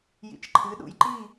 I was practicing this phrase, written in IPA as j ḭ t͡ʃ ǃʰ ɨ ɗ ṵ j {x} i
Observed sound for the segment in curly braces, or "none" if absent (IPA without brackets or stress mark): ǃ